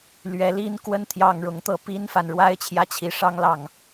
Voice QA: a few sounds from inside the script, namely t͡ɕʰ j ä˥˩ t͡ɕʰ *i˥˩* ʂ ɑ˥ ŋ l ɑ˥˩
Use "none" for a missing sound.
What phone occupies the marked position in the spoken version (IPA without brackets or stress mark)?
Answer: i˧˥